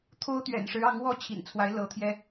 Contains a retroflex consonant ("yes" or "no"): yes